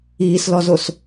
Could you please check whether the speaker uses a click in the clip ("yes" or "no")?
no